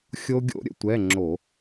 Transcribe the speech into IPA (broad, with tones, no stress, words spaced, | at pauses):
xʲo˧ɡʲo̰˧ ɾʲə̰˧ tʷɛ˧˥˧ŋ͡ǁo˧˩˧